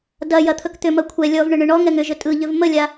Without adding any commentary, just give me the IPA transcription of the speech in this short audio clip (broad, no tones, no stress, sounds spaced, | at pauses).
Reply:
d ɐ j ɐ t̪ʰ ɵ k t̪ ʏ m ɐ kʷʰ ɛ lʲ ɔ v ɳ ʏ ɳ ʏ ɳ ɔ ŋ ɛ ŋ ʏ ʒ ɵ tʼ ɯ ʎ ʏ v m ə lʲ a